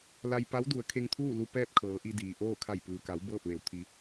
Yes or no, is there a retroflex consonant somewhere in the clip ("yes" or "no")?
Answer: no